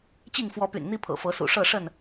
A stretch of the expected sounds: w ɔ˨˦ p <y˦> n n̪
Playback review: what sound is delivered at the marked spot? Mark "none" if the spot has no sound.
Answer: y̰˨˩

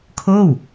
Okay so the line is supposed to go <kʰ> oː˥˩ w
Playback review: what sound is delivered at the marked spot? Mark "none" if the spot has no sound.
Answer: kʰ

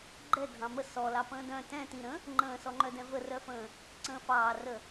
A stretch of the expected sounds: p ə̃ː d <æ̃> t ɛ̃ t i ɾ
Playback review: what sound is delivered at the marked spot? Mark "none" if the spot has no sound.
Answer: œ̃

